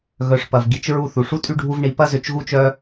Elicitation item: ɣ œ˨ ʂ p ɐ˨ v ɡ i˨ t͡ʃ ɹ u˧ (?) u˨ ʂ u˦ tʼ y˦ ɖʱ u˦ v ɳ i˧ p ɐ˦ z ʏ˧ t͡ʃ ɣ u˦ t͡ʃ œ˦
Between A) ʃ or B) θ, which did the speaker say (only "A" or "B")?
B